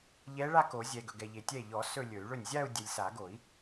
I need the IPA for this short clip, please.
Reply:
ʎɛ˧˥ɭa˥˧ko˨˩˦zʲɛ˨ ɡɵ˨ɡɛ˨ʎe˨tʲɛ˥˩ ʎɔ˨˩˦ sɵ˥˧ lʲɵ˨˩˦y̯ɭɵ˥˩nʲ zʲa˥˧u̯dʲɛ˨lʲsa˨˩˦ɡo˨˩˦i̯

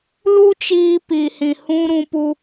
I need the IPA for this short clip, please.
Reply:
lu˦t͡ʃiː˧ pi˨hĩ˨ hũ˦ ɾũ˧pu˧

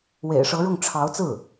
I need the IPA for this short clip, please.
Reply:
wḛ˨˩ɪ̯ʂɤ˧˥ɻʊ˥˩ŋ ʈ͡ʂʰɑ˧˥ʊ̯t͡sɹ̩˥˩

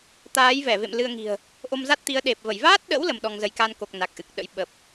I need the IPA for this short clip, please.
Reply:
t̪aː˨˦jvɛ˧˩vḛ˧˨m lɨ˧ə̯ŋi̤˨˩ə̯ | ʔo˧mza˦˥t̚ t̪i˨˦ə̯ɗe˨˩p̚və˧˩j vaː˦˥t̚ɗə̰˧˥w lə˧mɗɔ˧ŋzə˧j ka˧nko˨˩k̚ na˨˩k̚ʔɨ˨˩k̚ ɗə̰˧˥j ɓə˨˩p̚

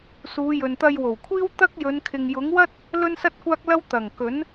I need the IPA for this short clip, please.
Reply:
suː˨˧jɵ˨nt̪ɐ˧jwo˨˩w kʷʰiː˥wt̪ɐ˥k̚jɵ˨˧n kʰɪ˨ŋjʊ˨˥ŋwɐ˥t̚ | lɵ˥nsɐ˥t̚kʷaː˥k̚lɐ˥w t̪ɐ˨˩ŋ kɵ˨˥n

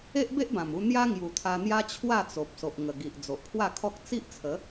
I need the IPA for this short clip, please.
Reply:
e˦ʔbe˦ʔbã˨˩mu˧ n̪ja˦ ŋju˨˩t̪ʰa˧n̪ja˦ t͡ɕʰwa˥˧t͡so˨p̚ so˨ʔŋə˨˩ɡi˨ʔ d͡zo˨ʔpʰwa˥˧kʰɔ˦k̚ t͡si˦ʔt͡sʰə˨˦

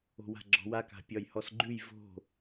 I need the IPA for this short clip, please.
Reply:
o̤wa̤ɡ͡ǁɔ̤wa ka̤pʲɒjhɔsɡ͡ǃʉj vo̤

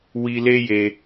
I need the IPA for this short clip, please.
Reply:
wi˧le˦je˧

